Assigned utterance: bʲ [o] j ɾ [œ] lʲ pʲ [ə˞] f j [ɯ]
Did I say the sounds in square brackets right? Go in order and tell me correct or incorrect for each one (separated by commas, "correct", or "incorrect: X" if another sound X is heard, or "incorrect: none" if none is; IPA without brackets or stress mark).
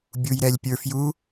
incorrect: u, incorrect: ɛ, correct, incorrect: u